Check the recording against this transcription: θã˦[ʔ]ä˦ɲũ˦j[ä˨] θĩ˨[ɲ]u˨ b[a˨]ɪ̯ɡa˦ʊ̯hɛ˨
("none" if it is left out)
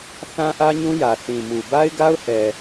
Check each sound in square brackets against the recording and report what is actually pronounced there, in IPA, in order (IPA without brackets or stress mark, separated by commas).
ʔ, ä˨, m, a˦